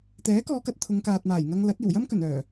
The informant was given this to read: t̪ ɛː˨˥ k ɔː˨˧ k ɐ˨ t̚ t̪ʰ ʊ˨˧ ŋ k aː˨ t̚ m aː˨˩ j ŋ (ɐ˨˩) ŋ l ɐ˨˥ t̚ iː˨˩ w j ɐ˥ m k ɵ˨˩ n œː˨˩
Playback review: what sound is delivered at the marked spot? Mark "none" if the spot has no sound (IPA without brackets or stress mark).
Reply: ɐ˧